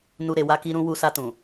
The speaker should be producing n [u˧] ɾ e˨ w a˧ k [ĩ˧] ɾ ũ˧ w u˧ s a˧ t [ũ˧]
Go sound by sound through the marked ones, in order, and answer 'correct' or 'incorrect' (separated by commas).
correct, incorrect, incorrect